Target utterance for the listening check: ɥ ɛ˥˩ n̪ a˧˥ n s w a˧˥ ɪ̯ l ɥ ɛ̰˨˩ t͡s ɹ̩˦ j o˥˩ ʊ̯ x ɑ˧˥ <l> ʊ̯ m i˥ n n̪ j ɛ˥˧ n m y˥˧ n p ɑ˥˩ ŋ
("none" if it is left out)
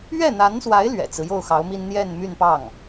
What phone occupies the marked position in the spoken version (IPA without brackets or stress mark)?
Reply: none